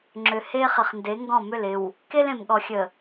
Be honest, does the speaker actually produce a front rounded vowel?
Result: yes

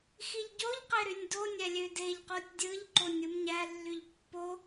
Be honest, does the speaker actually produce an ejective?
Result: no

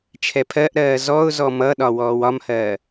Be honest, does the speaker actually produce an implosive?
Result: yes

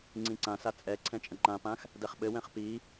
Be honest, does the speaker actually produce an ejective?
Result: yes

